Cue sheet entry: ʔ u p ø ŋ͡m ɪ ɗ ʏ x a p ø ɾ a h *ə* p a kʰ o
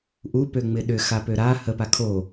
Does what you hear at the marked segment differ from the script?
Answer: no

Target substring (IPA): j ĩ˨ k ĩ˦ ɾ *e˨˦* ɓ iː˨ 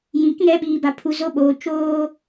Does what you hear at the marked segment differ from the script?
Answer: yes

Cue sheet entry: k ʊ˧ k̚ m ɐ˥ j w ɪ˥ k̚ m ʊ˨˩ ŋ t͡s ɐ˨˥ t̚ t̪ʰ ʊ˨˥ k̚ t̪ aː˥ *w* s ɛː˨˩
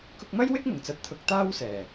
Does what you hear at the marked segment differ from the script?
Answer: no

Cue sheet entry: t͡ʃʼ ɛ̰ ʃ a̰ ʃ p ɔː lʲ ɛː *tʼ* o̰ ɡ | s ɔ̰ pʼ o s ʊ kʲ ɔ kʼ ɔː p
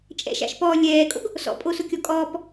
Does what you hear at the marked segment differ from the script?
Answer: yes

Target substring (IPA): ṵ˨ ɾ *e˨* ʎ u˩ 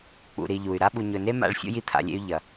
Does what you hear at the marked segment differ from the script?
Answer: yes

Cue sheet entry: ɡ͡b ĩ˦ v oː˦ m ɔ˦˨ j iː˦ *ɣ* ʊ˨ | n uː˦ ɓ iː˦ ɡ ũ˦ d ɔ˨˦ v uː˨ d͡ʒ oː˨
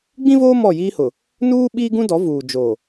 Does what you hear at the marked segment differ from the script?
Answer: yes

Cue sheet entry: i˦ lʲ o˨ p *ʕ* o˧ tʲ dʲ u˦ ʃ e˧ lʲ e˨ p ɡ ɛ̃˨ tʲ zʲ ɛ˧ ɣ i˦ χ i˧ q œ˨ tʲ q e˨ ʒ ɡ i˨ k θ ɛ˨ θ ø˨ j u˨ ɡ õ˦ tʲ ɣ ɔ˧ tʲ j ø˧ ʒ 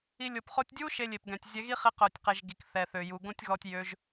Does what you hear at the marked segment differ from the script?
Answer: yes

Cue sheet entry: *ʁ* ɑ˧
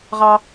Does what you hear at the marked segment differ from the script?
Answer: no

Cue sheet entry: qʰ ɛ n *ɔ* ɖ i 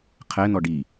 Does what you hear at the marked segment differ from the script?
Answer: no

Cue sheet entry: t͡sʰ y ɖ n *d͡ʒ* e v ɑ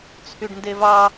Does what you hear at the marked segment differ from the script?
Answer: yes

